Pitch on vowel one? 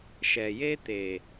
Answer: low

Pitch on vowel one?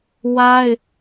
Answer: high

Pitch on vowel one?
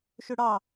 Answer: high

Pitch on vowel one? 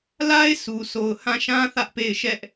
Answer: high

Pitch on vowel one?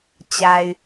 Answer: low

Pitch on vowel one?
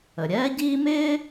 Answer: low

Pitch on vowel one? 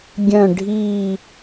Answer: falling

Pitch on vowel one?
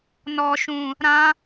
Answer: low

